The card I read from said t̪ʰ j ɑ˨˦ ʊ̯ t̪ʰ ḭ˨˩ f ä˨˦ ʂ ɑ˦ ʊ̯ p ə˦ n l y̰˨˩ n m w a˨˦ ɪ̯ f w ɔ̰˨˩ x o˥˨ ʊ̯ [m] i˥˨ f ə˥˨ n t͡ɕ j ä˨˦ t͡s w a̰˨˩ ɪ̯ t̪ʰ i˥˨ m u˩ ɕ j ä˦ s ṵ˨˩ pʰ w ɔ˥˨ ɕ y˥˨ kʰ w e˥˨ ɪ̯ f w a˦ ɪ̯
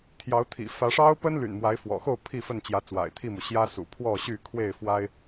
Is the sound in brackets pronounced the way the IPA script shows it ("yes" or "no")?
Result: no